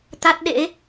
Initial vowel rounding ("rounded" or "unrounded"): unrounded